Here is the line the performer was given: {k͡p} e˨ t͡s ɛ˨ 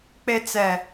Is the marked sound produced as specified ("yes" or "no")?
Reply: yes